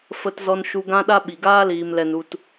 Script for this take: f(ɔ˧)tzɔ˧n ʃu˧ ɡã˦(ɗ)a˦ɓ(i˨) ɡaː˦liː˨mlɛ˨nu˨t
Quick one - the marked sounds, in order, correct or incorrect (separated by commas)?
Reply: incorrect, correct, correct